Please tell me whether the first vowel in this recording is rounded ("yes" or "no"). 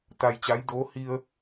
no